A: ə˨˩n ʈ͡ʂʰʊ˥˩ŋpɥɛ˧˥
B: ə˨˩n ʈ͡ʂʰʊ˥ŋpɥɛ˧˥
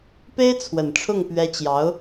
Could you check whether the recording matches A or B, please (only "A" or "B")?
A